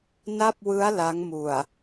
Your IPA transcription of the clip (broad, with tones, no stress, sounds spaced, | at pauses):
n a˥˩ p̚ w ɯ˦˥ a̯ l a˦˥ ŋ m u˨˩ a̯